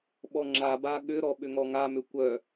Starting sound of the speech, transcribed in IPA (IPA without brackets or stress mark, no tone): ɓ